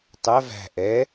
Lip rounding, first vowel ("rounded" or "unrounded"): unrounded